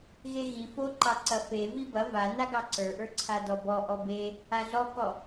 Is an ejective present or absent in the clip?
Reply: absent